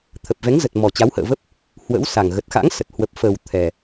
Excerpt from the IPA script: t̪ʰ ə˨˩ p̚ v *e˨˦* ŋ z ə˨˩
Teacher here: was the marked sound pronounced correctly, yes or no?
no